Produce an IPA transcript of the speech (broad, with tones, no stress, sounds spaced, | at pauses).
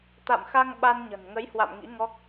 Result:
t̪ a̰˧˨ m x a˧ ŋ ɓ a˧ n ɲ ə̤˨˩ n ŋ ə˨˦ j h w a̰˧˨ m ŋ ḭ˧˥ ŋ ɔ˦˥ k̚